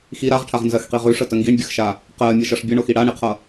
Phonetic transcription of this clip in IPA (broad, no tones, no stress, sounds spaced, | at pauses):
x i ɾ a ʁ ʈʰ a ʁ n z ɜ x q i ʁ ʉ ʂ ə t ə ŋ ɡ i ɳ bʲ ə x ʃ a | q ɜ mʲ ʌ ʃ ʌ ʂ bʲ ə ɳ o x i ɽ a ɳ i qʰ ʌ